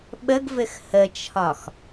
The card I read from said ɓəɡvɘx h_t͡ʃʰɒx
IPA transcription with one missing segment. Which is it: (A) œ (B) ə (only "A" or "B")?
B